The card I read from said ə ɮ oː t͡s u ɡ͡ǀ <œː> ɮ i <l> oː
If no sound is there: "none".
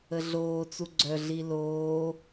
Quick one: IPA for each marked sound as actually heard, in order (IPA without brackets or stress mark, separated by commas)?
œ, l